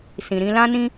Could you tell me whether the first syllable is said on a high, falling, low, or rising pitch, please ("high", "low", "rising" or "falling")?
low